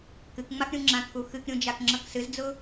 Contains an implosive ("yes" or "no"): no